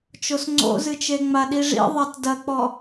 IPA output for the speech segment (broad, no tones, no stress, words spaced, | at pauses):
t͡ʃosŋ͡ǀo̰zɨt͡ʃe ŋ͡maɗiʐḭ ðˤatdɐk͡pɔ